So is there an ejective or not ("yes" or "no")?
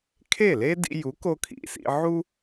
no